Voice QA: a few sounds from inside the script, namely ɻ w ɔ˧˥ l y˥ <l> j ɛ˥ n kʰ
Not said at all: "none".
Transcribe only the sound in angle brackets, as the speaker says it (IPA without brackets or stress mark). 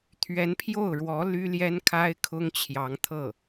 l